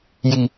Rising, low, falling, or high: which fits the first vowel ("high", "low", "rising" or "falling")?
low